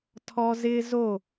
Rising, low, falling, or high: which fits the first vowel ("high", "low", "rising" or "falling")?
high